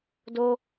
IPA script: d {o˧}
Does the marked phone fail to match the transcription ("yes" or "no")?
no